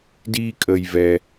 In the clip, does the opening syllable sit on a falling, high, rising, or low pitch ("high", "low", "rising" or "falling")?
high